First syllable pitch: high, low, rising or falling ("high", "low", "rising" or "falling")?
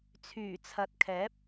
low